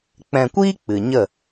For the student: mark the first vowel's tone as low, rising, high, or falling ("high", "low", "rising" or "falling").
low